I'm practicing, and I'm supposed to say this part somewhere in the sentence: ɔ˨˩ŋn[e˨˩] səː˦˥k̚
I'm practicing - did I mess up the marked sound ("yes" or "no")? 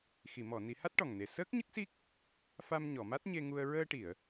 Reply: no